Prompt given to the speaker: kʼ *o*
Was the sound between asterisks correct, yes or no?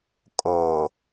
yes